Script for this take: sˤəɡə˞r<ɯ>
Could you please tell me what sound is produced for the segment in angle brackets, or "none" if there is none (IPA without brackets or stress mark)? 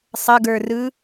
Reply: ɯ